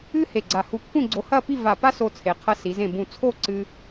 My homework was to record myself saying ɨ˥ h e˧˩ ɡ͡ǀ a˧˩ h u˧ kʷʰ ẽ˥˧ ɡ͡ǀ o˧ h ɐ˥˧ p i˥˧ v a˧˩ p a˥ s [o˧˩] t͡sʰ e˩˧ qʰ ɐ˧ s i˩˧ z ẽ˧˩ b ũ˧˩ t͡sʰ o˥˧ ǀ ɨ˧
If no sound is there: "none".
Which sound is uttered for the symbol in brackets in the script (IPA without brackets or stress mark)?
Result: o˧